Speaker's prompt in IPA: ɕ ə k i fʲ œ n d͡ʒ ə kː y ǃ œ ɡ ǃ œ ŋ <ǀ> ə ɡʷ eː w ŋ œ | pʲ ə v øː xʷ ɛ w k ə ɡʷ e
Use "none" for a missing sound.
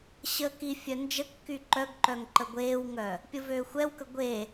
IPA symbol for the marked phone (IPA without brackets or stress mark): ǃ